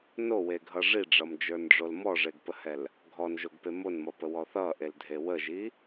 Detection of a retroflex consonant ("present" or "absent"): present